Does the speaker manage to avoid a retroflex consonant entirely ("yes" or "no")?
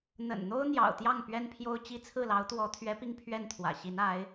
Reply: yes